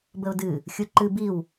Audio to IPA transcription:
b ə ʊ̯ d ɨ | xʲ u ǃ ɨ b i w

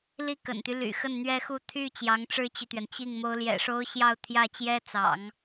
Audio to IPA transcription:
l i˥˩ k ə̰˨˩ n t̪ y˦ l y̰˨˩ x ə˥˩ n n̪ ɥ ɛ˥ x u˥˧ t̪ʰ y˥˩ t͡ɕ j ɑ˧˥ ŋ ʈ͡ʂ ɻ̩˥ t͡ɕ y˨ t̪ ɥ ɛ˩ n t͡ɕ i˥˩ ŋ m o˧˥ ʊ̯ l j ɛ̰˨˩ ʂ o˥ ʊ̯ ɕ j ɑ˥˧ ʊ̯ t̪ʰ j ä˥˩ t͡ɕ j ɛ˥ t͡s ɑ̰˨˩˦ ŋ

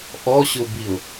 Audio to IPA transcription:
ʔ ɔ ɕ ʊ b i ʊ̯

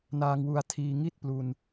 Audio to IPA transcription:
n aː˧ ŋ w u˧ a̯ tʰ iː˧ ŋ i˥˩ t̚ p l u˧ n

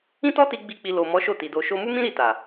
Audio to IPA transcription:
ĩ˦ t ɔ˦ t i˧ ɡ͡b i˦ k͡p i˧ l o˨ m ɔ˨˦ ʃ o˦˨ t i˨ d o˧ ʃ o˧ m u˦ m ĩ˦ ɾ i˦˨ t a˨

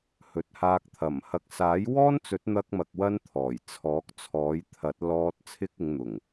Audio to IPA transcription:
h ɵ˨ t̚ h aː˧ k̚ t̪ʰ ɐ˨˩ m h ɐ˧ k̚ s aː˨˥ j w ɔː˥ n t͡s ɵ˨˥ t̚ n̪ ɐ˧ k̚ m ɐ˧ k̚ w ɐ˥ n t̪ʰ ɔː˨˩ j t͡sʰ ɔː˨˥ k̚ t͡sʰ ɔː˨˥ j t̪ʰ ɐ˨˥ t̚ l ɔː˧ t̚ t͡sʰ ɪ˥ k̚ ɪ˨˧ ŋ n̪ ʊ˨˩ ŋ

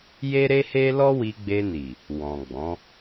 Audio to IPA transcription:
j e˦ ɾ e˦ h e˦ l ɔ˦ w i˧ ɡ͡b e˧ n i˨ | w ɔ̃˨ ɡ͡b ɔ̃˨˦

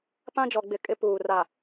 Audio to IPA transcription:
p ã˦ d͡ʒ ɔ˨ ɡ͡b ɪ˨ kʼ ɪ˦ p uː˨ r a˨

